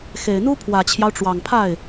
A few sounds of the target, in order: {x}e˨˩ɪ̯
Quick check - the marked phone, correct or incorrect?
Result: correct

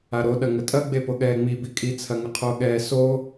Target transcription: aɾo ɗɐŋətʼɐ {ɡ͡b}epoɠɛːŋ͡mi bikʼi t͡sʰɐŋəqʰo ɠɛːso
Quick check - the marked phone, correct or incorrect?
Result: correct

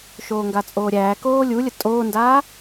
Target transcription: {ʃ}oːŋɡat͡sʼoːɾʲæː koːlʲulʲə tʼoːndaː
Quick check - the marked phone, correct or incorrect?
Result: correct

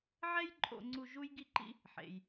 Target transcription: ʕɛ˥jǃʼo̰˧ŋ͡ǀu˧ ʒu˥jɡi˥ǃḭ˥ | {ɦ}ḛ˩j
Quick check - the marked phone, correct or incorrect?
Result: incorrect: ħ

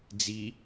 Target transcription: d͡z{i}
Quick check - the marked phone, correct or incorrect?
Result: correct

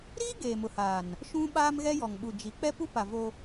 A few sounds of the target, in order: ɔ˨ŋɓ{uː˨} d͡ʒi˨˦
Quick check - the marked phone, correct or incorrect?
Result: incorrect: u˨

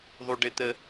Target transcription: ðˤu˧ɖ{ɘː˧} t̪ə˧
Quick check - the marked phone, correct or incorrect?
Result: incorrect: ɘ˧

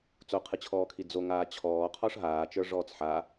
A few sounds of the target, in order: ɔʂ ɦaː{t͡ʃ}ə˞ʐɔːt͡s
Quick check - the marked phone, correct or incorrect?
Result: correct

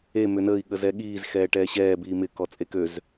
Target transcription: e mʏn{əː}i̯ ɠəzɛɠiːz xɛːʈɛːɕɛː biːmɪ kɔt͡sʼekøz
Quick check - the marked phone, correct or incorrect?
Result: correct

